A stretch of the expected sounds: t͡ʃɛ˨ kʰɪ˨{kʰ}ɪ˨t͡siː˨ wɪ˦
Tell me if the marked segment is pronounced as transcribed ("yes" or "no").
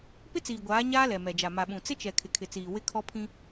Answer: yes